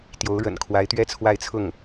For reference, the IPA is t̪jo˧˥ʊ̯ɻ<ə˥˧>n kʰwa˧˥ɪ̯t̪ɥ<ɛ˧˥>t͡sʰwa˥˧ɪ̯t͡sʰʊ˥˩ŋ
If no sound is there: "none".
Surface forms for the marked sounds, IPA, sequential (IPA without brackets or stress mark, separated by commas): ə̰˨˩, ɛ˥˧